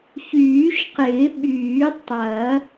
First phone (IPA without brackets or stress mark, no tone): ç